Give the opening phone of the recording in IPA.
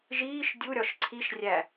ʒ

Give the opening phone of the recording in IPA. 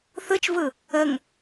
θ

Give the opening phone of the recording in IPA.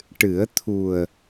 ʈ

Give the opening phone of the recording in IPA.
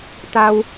t̪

